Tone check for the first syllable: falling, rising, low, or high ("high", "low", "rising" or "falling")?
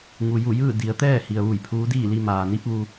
low